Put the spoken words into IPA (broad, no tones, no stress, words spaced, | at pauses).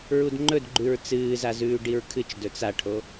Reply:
ɹudŋ͡ǃɵdɡ͡ǃʉɹ t͡sɨːzazʉː ɖiɹkʰɨt͡ʃ dɵt͡saʈʰo